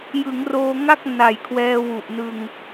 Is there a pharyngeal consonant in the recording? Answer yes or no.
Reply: no